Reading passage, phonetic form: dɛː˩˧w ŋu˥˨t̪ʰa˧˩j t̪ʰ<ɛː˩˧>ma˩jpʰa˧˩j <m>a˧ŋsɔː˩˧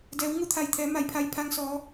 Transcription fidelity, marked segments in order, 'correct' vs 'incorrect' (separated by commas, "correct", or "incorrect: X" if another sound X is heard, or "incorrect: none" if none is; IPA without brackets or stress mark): correct, incorrect: pʰ